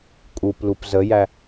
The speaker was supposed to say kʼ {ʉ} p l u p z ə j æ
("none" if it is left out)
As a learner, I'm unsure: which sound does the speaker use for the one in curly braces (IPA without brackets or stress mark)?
u